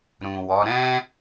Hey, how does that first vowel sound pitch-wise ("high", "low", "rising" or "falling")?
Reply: low